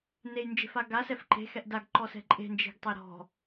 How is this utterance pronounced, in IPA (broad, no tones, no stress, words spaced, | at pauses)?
nejnd͡ʒe̤fa ɡasɛf ǃe̤xɛʔ daɡǃɔsɛ̤ ǃʼe̤nd͡ʒe̤ɡtˤe ɾɔ̤